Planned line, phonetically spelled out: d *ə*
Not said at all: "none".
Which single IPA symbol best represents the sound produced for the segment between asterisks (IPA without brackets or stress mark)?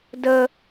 ə